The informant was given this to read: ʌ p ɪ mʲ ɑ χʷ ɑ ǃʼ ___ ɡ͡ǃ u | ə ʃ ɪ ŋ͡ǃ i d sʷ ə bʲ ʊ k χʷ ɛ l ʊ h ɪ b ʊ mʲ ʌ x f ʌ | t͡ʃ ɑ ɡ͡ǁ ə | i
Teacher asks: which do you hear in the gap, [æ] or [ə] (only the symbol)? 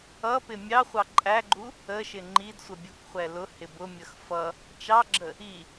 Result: æ